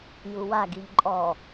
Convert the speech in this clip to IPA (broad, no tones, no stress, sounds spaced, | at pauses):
j u w a ɡ i ʎ ǃʼ ɔ